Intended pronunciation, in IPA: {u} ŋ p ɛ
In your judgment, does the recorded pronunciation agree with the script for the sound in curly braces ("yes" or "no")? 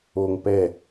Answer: no